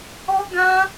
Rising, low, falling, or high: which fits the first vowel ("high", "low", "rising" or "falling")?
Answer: high